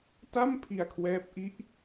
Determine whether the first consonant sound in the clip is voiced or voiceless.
voiceless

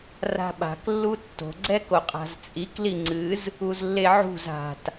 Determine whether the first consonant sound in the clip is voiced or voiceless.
voiced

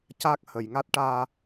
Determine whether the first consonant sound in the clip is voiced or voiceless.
voiceless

